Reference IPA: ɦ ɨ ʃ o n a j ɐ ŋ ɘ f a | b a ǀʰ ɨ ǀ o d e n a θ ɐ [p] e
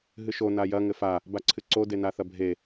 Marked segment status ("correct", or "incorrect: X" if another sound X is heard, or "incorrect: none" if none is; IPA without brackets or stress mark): incorrect: bʱ